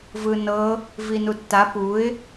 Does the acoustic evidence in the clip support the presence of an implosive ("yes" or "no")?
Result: no